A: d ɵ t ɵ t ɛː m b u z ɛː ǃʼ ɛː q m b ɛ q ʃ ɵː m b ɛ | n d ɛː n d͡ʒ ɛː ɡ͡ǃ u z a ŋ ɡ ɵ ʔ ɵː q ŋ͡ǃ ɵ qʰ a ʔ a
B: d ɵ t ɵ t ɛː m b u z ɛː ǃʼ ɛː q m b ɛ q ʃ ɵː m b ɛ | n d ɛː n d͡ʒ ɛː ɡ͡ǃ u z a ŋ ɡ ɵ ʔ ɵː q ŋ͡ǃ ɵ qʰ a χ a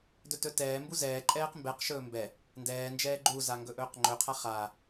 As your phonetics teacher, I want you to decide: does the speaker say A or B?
B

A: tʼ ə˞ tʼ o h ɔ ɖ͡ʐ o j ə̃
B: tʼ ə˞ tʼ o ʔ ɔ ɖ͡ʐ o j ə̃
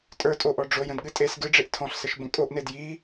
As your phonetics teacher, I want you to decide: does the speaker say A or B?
B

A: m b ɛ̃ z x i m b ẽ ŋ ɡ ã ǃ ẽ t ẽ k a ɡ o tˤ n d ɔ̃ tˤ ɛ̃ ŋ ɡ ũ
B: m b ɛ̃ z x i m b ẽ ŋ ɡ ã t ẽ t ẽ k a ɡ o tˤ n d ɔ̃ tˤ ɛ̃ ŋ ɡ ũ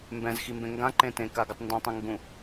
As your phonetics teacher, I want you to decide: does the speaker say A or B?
A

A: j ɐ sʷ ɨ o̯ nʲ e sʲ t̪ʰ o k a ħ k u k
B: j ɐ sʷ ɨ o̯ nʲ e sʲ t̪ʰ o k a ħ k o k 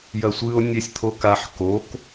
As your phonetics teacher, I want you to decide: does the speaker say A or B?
B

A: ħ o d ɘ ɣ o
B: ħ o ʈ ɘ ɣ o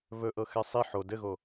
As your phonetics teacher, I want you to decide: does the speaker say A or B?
A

